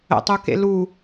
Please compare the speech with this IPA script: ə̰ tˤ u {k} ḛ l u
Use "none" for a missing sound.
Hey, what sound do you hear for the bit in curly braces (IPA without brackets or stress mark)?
k